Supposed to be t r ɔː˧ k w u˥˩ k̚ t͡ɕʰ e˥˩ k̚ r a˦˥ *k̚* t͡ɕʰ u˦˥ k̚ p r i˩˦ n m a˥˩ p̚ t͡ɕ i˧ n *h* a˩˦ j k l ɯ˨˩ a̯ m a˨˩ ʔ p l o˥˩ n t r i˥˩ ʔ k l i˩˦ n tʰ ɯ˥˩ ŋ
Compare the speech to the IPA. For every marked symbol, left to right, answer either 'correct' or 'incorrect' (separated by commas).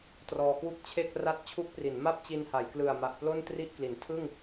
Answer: incorrect, correct